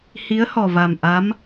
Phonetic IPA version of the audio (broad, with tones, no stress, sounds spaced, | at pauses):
h i˧˥ ə̯ h ɔ˨˩ v a˨˩ m ʔ a˧˥ m